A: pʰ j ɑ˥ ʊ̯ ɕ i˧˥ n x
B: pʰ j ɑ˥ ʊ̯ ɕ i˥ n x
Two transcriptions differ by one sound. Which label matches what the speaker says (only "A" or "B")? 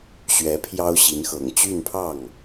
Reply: A